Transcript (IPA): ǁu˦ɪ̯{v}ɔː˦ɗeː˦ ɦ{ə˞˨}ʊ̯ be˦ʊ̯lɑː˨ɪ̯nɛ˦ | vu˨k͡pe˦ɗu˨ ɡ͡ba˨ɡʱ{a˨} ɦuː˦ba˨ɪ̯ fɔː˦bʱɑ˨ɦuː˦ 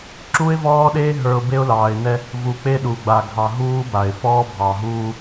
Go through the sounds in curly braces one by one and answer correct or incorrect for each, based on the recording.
correct, correct, incorrect: ɑ˨

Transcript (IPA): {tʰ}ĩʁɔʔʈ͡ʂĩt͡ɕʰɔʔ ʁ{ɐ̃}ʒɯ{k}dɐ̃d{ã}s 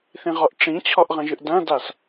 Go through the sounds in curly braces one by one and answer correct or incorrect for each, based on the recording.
incorrect: θ, correct, incorrect: ʔ, incorrect: a

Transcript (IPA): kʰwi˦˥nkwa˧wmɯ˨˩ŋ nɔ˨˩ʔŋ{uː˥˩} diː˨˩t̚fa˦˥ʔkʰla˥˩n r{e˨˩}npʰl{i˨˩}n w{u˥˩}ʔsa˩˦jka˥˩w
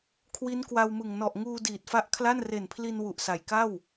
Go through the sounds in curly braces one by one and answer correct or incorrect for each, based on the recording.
incorrect: uː˧, correct, incorrect: i˧, incorrect: u˨˩

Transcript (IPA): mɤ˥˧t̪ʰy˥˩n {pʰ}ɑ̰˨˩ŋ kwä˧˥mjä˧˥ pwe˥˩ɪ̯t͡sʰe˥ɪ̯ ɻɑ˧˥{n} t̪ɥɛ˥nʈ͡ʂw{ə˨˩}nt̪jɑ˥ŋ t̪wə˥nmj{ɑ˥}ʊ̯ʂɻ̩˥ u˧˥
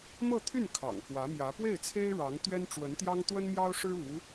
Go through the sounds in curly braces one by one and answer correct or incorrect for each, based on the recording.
incorrect: kʰ, incorrect: ŋ, incorrect: ə˧˥, correct

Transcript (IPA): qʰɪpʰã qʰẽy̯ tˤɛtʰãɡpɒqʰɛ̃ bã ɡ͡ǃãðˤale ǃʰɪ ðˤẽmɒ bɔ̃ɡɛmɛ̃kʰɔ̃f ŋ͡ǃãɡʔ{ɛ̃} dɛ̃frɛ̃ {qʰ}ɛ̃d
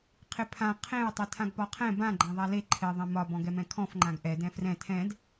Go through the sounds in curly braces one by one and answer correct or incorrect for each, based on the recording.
incorrect: ɛ, incorrect: tʰ

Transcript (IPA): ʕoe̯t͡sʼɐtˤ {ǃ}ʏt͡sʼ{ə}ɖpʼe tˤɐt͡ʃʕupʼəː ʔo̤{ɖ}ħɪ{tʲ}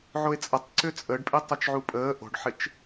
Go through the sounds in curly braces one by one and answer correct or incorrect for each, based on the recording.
incorrect: ǀ, correct, correct, incorrect: t͡ʃ

